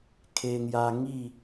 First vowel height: mid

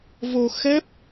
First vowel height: mid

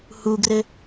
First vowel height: high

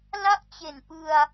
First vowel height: low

